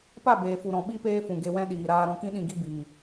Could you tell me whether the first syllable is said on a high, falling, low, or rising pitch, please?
falling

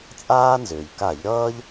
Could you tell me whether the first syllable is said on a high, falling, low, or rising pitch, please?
high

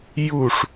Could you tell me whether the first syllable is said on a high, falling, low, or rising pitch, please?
falling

